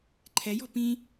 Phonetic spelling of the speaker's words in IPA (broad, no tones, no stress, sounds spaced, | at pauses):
ǃʰ ɛ j ɔ̤ p ĩ